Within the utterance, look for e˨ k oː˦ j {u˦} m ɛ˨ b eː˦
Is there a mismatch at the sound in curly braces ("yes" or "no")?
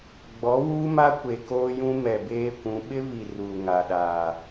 yes